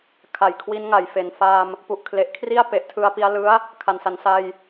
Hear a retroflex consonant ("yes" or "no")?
no